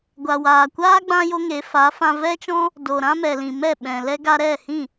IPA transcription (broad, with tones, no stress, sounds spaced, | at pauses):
ɡʷ a˨ w aː˨ kʷ aː˦ ɡ͡b ã˦ j o˦ ŋ e˨˦ f a˨˦ f ã˧ v ɛ˦ t͡ʃ ɔ̃˦ | d o˨ ɾ ã˦ m ɛ˨ l ĩ˨ m ɛ˦˨ ɓ ɛ̃˨ l ɛ˦ ɡ a˧ ɾ ɛ˦˨ h ĩ˦˨